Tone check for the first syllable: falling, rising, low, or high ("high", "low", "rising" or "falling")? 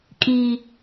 low